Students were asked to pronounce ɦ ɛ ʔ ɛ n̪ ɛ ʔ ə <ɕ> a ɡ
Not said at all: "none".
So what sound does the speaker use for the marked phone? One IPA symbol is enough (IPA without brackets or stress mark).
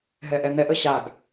ɕ